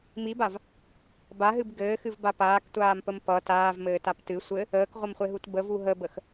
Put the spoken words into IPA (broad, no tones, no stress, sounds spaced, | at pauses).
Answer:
m i b a v | b a ɦ ɨ b ɡ ɘː x ɨ v b a p aː k tʷ aː m p ə m p ʌ t aː v m ɘː t a p t ɨ sʷ ɘ | əː k ʁʷ ʌ m χʷ e ɦ u t b ə v u ɦ ə b ə x